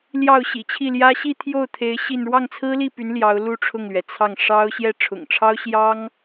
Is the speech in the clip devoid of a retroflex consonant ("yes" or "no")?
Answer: no